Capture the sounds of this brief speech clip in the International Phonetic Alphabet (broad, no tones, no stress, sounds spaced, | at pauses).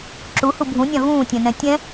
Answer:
ǁ u h u bʱ ũ nʲ ã v ũː tʲ ɛ̃ n ɛ̃ tʲ ɛ̃